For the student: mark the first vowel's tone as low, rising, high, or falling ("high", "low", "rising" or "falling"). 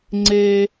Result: high